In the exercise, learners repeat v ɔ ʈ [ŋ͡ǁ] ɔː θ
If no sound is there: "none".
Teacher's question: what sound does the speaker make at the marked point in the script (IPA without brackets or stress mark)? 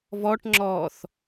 ŋ͡ǁ